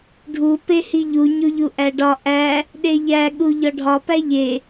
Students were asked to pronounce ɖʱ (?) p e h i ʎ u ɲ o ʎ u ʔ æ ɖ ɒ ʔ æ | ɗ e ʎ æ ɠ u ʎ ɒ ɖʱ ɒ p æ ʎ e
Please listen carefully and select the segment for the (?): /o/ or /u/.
u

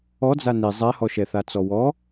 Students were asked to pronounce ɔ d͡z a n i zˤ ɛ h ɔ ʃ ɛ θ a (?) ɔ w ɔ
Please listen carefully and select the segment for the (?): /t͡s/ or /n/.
t͡s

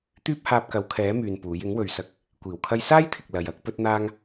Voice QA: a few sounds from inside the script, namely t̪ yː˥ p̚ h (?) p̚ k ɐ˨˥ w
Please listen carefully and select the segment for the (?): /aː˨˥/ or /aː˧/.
aː˧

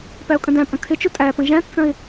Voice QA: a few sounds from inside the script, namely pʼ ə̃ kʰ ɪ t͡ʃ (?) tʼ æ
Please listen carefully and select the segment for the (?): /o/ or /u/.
u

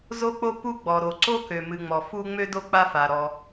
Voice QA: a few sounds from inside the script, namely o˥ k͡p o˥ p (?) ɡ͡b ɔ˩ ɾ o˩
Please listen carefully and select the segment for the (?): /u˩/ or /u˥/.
u˥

